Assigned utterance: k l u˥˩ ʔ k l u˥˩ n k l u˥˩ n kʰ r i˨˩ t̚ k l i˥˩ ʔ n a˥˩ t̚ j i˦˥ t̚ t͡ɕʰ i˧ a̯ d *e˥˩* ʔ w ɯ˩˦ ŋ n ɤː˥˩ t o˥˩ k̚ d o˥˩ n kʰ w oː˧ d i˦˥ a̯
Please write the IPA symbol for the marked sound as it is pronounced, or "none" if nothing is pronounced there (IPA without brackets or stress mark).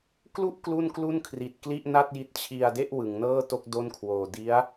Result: e˥˩